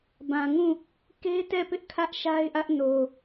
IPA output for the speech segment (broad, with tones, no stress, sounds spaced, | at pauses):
b ã˨ ŋ ũ˦˨ | k e˦ t ɛ˦˨ p ɪ˦ ʔ kʰ ä˦ ʔ ʃ a˦ ɪ̯ ʔ ä˦ ʔ n o˨